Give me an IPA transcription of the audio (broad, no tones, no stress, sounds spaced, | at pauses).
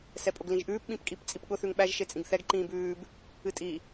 s ɛ pʼ ʊ ɡ l ĩ ʒ ʔ ʉː p ɓ ĩ p kʼ i p t͡sʼ i p ɠ ʊ θ ʉ ŋ ɓ æ ʒ ʃ e t͡sʼ ĩ ɡ θ ɛ ɡ ǃ ĩː b ʉː b | ɨ tʼ i